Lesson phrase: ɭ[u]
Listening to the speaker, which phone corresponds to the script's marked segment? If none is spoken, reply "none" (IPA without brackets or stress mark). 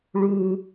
u